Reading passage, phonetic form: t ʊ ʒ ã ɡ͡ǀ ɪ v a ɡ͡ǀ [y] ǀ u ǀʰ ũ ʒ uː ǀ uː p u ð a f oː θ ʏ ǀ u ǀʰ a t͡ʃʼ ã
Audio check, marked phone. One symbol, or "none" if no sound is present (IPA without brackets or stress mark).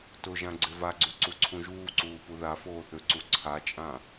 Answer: y